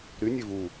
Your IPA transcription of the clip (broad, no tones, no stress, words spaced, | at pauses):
ɾynʲe vu